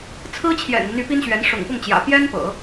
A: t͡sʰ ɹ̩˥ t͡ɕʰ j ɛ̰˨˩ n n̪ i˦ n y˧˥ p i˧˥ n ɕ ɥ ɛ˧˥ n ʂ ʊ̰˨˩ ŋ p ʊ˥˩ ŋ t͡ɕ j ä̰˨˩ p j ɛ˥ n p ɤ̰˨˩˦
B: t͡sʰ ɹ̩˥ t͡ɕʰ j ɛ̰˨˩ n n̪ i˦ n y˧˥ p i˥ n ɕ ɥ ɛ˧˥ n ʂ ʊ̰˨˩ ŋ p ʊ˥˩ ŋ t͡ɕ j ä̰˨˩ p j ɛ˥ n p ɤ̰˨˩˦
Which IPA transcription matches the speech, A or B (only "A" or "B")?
B